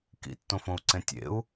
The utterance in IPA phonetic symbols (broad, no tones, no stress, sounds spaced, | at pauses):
k ḭ tː õ f õ u̯ ǀ ẽ tʲ ḛ u̯